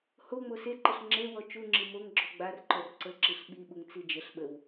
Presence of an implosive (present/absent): present